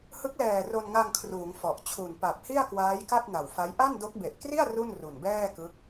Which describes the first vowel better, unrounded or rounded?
unrounded